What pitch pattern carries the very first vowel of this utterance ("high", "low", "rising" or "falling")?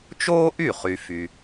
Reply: high